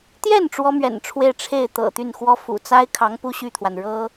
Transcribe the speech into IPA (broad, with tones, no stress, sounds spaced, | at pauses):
t̪ j ɛ˥˩ n ʈ͡ʂ w ɔ˥ m ɥ ɛ̰˨˩ n ʈ͡ʂʰ w e˥˧ ɪ̯ ʈ͡ʂʰ e˥˩ ɪ̯ t̪ ɤ̰˨˩ t̪ y˥˩ n x w ɔ˥ f ṵ˨˩ t͡s a˥ ɪ̯ kʰ ɑ˧˥ ŋ p u˥ ɕ y˥˩ t̪ʰ w a˩ n ɻ ɤ˥